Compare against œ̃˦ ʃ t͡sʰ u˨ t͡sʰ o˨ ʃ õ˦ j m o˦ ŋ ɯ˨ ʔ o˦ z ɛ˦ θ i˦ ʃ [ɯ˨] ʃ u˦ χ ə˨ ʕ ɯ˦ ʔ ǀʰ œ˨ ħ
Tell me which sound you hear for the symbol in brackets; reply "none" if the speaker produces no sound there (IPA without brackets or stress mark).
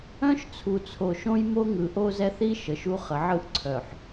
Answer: ə˨